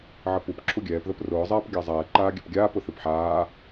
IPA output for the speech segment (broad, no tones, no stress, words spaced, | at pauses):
ʕəpup ǁʰuɡʲɛːpðəp rʊːzˤɛːp ɡʲazˤɛː ǃaːɡʲɛpɡʲaːpʊ θɨpħaː